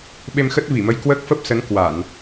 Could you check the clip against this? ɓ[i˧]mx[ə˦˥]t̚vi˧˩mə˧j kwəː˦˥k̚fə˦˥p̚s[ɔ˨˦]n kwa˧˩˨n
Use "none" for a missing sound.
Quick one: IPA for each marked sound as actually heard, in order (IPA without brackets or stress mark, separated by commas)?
e˧, ə˦˥, ə˨˦